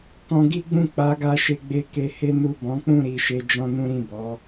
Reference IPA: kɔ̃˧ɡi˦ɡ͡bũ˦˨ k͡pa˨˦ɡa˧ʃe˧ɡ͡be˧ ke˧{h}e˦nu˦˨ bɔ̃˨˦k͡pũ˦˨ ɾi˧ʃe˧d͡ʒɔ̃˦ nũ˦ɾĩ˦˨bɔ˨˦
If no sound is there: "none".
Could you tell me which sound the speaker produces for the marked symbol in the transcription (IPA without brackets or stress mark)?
h